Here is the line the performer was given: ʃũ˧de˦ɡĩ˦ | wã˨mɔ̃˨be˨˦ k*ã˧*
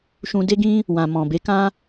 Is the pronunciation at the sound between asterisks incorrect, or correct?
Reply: incorrect: ã˦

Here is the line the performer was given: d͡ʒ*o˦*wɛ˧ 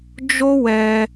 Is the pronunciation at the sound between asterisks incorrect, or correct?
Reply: correct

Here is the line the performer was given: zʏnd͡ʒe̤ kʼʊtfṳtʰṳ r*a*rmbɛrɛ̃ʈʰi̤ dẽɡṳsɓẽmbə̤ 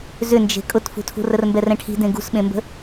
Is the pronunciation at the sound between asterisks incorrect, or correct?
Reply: incorrect: ə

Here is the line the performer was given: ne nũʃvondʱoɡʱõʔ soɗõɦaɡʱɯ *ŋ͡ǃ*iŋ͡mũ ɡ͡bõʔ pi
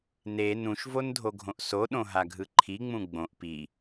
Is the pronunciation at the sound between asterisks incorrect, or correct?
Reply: incorrect: ǃʰ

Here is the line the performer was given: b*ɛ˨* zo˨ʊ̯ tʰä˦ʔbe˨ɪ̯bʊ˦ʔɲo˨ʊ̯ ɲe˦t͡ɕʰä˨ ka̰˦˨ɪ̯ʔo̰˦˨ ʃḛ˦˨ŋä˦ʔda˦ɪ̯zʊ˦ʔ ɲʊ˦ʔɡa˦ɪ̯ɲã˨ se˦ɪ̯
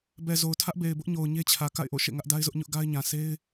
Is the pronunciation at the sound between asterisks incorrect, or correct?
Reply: correct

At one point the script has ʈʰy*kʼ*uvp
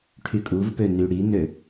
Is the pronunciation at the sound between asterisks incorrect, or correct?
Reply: correct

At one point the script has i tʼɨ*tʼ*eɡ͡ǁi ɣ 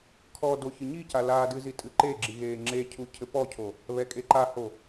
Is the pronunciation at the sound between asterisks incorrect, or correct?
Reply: incorrect: ǃ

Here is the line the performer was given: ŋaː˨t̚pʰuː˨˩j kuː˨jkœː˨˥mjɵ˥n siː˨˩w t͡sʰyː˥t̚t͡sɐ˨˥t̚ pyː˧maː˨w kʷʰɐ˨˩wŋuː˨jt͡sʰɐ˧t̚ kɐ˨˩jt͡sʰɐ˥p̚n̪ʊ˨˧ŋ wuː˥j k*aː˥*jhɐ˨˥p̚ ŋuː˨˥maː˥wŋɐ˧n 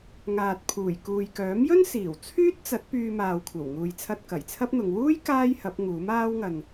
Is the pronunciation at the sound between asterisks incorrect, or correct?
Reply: correct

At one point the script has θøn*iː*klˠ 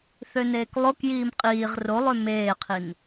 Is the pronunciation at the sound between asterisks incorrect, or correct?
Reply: incorrect: eː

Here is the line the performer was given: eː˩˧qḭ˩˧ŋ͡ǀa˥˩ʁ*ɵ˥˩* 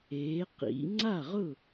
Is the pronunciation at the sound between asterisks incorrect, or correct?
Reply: incorrect: ʊ˥˩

